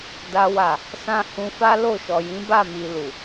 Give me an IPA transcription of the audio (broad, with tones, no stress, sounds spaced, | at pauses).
d a˦ w a˦˨ | s ã˧ h ũ˧ f a˦ l o˦˨ ʃ ɔ˨ j ĩ˨˦ b a˦˨ m i˨ l u˨